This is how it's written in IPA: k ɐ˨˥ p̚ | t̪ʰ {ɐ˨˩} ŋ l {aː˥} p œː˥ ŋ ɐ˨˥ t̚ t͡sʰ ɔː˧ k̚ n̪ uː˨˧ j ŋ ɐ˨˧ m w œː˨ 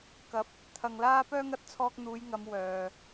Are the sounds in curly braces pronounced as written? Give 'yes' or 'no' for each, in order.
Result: no, yes

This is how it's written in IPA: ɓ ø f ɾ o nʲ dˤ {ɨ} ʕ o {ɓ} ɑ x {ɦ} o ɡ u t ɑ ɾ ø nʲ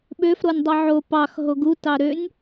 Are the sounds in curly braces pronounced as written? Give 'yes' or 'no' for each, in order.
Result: no, no, yes

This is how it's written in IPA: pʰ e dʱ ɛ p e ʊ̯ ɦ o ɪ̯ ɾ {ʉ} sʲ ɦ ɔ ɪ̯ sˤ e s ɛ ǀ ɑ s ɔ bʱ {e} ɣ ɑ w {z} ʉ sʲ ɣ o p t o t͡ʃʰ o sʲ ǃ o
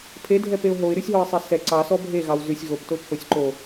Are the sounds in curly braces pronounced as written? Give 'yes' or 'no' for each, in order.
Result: yes, yes, yes

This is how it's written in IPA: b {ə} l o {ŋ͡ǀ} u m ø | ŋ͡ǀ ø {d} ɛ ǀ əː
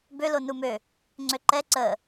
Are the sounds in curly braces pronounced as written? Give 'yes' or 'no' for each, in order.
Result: no, no, no

